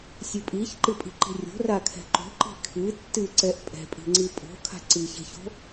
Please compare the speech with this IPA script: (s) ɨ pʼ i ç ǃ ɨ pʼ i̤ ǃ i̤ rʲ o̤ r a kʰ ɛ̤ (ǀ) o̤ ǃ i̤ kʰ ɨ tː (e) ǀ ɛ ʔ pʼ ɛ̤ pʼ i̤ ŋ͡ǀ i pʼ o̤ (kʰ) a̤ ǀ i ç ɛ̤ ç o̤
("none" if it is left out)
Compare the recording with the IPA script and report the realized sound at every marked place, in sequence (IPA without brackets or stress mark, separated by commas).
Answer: sʲ, ǃ, ɨ, kʰ